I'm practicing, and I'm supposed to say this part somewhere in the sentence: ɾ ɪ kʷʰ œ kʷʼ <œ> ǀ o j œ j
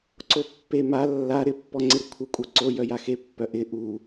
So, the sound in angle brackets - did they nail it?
yes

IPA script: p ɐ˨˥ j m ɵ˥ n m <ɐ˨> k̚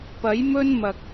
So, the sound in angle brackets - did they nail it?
yes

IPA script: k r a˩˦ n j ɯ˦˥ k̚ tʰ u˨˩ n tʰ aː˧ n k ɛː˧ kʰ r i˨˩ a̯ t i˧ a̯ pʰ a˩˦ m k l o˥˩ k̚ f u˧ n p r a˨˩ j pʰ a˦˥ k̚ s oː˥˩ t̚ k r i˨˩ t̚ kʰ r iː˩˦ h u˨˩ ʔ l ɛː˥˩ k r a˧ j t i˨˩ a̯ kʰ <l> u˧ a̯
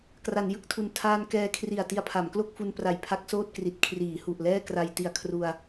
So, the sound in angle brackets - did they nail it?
no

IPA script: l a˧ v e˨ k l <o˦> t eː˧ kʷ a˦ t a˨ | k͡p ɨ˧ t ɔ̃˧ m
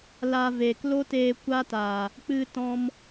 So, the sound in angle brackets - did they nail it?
yes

